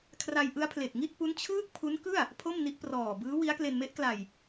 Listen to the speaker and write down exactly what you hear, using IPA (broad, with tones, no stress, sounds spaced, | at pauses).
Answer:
kʰ r a˧ j ʔ ɯ˦˥ a̯ pʰ l e˨˩ k̚ ŋ i˥˩ t̚ p u˦˥ n t͡ɕʰ ɯː˥˩ k̚ pʰ u˦˥ n k ɯ˥˩ a̯ | pʰ o˥˩ m n i˦˥ ʔ p r ɔː˨˩ b ɯː˦˥ w i˦˥ a̯ k l e˧ n m e˦˥ ʔ k l a˨˩ j